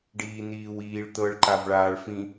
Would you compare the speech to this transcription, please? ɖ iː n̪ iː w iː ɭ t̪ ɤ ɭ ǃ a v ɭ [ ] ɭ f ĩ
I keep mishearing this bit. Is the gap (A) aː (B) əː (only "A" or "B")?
A